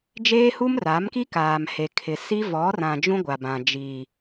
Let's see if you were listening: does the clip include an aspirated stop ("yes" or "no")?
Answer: yes